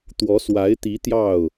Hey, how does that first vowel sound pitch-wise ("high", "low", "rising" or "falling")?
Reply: rising